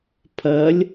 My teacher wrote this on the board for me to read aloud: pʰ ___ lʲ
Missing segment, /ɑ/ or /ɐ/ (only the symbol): ɐ